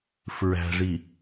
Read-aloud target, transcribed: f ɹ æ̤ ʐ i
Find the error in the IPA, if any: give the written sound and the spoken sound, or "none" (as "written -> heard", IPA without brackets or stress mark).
none